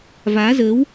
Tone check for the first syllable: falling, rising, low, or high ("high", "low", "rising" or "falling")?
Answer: rising